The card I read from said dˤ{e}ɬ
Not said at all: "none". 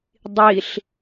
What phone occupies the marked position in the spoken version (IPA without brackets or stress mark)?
i